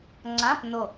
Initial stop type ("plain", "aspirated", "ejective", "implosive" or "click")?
click